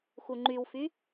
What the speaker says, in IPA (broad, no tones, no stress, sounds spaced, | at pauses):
x u ŋ͡ǃ y w f y